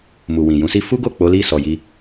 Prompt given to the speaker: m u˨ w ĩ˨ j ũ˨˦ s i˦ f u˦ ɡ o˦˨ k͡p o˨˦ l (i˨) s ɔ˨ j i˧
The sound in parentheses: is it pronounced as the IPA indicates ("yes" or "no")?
no